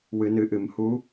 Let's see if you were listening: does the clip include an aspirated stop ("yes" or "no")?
no